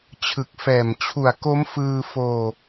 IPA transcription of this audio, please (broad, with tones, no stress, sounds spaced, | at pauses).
t͡ɕʰ ɯ˨˩ k̚ f ɛː˨˩ m t͡ɕʰ u˨˩ a̯ k o˦˥ m f ɯː˧ f oː˧